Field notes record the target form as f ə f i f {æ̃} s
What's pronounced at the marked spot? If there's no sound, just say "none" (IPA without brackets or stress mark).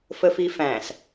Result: æ̃